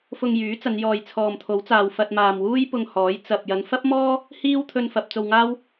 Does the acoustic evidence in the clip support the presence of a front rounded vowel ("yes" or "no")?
yes